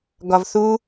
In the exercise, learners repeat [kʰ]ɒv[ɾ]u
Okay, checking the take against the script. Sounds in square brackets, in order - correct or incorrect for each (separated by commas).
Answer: incorrect, incorrect